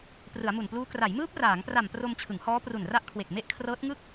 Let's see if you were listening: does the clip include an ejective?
no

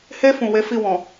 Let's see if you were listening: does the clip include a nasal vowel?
yes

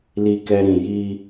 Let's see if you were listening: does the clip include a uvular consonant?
no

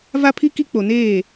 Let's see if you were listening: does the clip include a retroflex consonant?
no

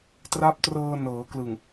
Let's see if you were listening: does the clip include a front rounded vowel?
no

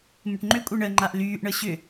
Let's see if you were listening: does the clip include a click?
yes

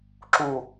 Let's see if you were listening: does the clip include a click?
yes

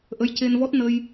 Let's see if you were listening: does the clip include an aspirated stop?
no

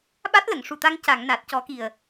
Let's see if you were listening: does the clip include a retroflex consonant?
yes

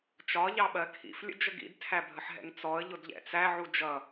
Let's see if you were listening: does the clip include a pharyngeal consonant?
yes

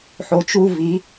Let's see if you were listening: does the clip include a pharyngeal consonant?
yes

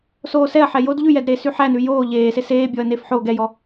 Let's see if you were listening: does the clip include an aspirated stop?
no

